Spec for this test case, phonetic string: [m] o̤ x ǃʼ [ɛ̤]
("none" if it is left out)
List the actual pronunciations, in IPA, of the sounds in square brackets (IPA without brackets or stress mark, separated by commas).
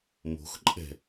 m, ɛ̤